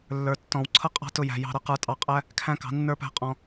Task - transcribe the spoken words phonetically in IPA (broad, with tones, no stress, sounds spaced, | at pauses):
lː ə˞˨ tː ɔ̃˨ w ǀʰ ʌ˦ qʼ ɑ̤˦ t ʊ˧ j æ̤˨ j ɑ̤˧ ɾ ʌ˧ q ə˞˧ tʼ ɑ˧ qʼ æ˦ | kʰ æ̃˦ k ɑ̤˨˦ nː ə˞˦ p æ̤˦ qʼ ɔ̃˧